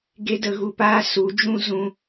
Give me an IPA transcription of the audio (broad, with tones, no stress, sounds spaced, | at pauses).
ɡ e˦ d ə˧ ɣ u˧ p aː˦ s u˨˦ d͡ʒ ũ˦ z ũ˦